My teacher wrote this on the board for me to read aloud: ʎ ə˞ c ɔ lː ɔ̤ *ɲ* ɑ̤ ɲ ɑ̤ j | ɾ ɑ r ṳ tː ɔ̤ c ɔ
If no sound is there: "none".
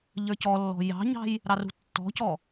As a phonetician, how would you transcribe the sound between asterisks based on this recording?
j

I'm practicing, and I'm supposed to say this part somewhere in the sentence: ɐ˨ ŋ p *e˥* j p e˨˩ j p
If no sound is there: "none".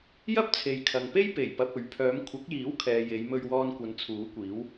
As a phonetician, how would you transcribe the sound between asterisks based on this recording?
e˥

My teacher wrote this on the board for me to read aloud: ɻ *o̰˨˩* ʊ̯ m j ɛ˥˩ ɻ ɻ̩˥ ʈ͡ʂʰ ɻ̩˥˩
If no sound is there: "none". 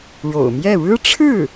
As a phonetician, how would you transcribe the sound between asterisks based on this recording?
o̰˨˩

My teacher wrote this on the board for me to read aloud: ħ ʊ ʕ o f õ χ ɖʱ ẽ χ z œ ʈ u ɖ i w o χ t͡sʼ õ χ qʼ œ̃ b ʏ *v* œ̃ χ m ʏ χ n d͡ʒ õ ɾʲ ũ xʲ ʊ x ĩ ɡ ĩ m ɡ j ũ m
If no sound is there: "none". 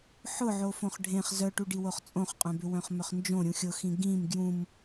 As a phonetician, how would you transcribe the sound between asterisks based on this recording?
w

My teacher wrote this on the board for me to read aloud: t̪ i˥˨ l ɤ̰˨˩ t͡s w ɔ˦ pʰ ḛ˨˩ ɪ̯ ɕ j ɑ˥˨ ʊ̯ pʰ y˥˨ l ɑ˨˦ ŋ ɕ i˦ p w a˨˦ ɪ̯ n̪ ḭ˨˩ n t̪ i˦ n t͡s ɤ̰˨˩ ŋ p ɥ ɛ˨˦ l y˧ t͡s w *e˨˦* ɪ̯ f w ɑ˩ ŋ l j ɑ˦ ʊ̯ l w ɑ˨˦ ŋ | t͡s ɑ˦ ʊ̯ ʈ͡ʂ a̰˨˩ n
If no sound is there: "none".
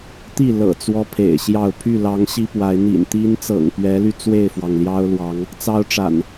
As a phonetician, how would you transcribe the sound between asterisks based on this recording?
e˥˨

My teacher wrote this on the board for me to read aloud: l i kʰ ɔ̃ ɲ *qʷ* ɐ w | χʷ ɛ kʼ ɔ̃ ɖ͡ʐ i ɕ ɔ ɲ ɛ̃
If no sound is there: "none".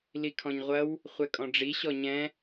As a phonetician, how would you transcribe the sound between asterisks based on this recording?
ʁʷ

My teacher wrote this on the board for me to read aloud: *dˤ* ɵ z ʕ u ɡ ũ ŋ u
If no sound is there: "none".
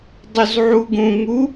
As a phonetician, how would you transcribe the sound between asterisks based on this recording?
dˤ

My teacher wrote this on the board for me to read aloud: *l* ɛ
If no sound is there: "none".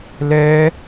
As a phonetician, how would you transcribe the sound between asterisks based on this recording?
l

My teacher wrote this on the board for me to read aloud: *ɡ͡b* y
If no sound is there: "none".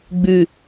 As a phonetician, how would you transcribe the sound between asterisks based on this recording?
ɡ͡b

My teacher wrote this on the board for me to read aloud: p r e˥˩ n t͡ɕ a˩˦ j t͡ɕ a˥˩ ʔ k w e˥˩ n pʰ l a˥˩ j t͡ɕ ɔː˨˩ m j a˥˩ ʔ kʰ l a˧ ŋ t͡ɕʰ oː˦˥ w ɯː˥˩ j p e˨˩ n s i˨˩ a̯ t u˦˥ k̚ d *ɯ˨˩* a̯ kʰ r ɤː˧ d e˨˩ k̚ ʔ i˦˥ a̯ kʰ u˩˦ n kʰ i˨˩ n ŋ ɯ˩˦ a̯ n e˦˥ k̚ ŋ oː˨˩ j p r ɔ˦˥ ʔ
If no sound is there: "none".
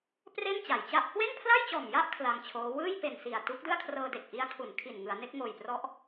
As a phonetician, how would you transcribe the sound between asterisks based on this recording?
ɯ˥˩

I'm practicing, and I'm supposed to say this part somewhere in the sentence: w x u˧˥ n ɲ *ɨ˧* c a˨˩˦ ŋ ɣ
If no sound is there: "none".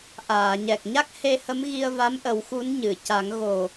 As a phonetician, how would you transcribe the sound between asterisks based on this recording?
ɨ˨˩˨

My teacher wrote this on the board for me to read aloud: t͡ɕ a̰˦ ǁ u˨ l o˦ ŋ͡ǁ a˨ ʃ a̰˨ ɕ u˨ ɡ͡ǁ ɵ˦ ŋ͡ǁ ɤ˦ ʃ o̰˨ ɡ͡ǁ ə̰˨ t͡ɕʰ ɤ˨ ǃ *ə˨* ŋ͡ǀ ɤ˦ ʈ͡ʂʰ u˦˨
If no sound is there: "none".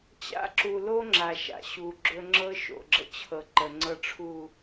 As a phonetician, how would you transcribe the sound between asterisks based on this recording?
ə˨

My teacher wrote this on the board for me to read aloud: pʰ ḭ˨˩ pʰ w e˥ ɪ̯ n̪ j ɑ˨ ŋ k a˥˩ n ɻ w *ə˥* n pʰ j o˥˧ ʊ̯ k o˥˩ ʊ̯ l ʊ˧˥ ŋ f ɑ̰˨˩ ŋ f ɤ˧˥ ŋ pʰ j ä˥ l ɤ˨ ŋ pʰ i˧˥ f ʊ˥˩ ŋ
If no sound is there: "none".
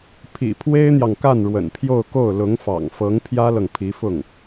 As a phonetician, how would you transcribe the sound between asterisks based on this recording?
ə̰˨˩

